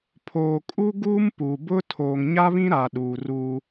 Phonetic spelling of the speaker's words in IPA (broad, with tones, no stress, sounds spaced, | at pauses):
pʰ oː˨ kʼ u˦ ɡ uː˦ m p u˨ b ʊ˦ tʰ oː˨ ŋ ɲ a˦ β ĩ˦ ɾ a˨ ɗ uː˨ r uː˦